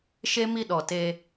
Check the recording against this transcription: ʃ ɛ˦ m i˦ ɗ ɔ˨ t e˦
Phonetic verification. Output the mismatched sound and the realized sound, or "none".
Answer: ɛ˦ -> e˦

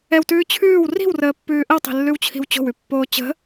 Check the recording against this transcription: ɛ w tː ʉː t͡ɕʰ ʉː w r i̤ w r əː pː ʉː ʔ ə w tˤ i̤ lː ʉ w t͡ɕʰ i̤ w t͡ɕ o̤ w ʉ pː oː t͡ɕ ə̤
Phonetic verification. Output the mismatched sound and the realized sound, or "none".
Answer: tː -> t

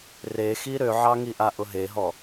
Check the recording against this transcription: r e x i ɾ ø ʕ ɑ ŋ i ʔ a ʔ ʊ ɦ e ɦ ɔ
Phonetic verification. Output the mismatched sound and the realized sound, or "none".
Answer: none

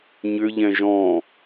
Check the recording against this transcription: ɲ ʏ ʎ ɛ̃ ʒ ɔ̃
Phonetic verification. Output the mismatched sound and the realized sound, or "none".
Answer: none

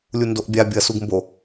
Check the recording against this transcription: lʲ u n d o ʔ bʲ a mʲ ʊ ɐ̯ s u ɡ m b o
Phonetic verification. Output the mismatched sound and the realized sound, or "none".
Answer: mʲ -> bʲ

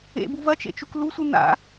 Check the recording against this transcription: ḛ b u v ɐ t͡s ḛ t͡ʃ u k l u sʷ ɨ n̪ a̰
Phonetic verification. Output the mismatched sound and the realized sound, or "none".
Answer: t͡s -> t͡ʃ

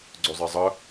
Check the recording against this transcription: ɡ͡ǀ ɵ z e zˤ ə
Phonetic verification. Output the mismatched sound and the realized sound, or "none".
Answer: z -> zˤ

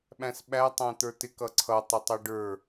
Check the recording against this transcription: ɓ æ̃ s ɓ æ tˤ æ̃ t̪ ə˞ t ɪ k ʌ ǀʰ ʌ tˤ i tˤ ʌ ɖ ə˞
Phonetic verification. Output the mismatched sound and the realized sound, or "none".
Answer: i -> ɪ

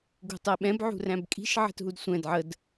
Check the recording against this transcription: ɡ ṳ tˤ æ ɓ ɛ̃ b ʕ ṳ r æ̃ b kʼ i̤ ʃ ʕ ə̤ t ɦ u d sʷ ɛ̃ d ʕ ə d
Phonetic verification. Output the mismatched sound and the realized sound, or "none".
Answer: none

